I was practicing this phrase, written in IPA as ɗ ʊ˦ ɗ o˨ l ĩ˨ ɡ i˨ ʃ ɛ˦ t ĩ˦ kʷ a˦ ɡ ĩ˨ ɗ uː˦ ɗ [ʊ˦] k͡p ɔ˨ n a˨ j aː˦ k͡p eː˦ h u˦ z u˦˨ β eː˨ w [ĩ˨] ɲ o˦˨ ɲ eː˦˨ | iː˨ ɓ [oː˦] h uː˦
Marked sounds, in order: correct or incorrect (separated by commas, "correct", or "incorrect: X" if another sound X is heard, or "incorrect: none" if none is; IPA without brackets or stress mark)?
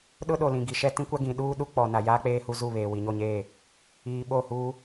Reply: incorrect: u˦, incorrect: i˨, incorrect: oː˦˨